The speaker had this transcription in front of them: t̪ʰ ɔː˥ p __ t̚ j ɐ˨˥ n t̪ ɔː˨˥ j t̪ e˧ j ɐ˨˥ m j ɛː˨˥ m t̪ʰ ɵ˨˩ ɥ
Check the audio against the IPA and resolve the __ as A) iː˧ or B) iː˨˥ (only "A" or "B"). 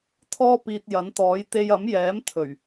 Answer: A